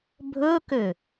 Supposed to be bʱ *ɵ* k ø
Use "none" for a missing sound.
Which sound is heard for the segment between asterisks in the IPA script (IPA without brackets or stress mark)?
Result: ɵ